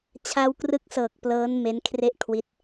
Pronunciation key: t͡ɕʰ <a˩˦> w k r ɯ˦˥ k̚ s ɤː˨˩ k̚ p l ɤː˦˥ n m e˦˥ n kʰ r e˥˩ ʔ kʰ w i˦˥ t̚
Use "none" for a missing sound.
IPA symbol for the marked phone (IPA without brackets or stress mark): a˧